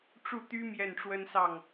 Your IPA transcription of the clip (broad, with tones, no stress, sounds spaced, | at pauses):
ʈ͡ʂ u˥˩ t̪ y˥ m j ɛ˥˩ n ʈ͡ʂ w ə˥ n s ɑ˥˩ ŋ